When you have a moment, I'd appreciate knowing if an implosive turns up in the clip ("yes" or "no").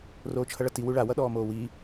yes